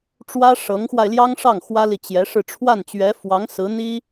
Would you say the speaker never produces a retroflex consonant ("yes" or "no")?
no